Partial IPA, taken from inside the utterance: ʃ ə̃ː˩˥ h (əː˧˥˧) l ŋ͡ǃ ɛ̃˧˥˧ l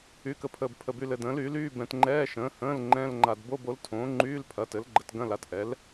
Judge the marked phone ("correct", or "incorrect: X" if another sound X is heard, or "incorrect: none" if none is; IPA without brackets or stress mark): incorrect: ə̃ː˧˥˧